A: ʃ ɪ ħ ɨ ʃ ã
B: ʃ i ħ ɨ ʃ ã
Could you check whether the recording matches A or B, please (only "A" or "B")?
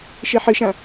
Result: B